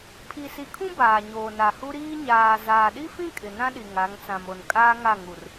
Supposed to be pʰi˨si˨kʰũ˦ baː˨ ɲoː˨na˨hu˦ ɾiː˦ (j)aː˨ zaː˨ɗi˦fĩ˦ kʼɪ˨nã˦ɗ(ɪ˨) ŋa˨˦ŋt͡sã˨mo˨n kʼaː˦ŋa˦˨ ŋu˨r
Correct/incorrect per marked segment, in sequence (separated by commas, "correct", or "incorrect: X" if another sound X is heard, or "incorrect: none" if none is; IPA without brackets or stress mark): incorrect: ɲ, incorrect: i˨